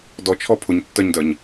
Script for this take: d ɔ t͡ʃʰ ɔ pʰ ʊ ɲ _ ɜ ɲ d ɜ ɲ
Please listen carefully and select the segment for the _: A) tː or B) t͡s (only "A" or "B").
A